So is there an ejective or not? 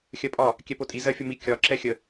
yes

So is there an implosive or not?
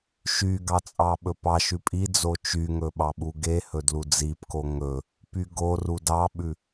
yes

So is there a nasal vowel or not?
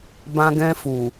yes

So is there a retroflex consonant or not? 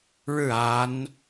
yes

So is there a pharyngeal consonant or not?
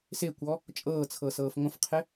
no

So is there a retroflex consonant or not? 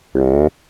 yes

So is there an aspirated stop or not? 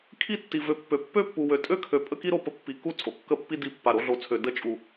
yes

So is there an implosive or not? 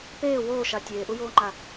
no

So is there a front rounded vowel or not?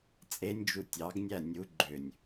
yes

